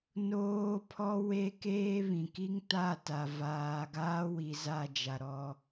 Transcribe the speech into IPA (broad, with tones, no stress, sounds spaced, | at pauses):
n oː˦ pʰ ɔ˦ w e˦ k eː˦ β ĩ˨ k i˦ ŋ t a˦˨ t a˨ v aː˨ ɡ aː˦ w i˨ z a˦˨ d͡ʒ a˨ ɾ ɔ˦